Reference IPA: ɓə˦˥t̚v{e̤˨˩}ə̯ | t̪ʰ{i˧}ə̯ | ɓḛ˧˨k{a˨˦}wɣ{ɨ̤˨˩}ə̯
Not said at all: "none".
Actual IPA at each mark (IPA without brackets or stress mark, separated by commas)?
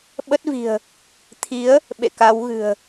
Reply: i̤˨˩, i˨˦, a˨˦, ɨ̤˨˩